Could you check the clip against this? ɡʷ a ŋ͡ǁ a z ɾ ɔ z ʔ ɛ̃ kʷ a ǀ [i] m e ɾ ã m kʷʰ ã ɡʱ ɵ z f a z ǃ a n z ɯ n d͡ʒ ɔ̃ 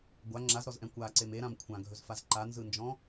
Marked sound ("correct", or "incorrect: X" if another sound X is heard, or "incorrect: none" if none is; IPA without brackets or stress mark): incorrect: e